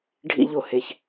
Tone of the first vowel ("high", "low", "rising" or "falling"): low